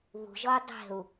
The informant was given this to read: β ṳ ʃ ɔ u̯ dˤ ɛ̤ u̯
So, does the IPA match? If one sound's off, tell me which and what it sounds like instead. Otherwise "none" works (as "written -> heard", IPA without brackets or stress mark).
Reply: ʃ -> ʒ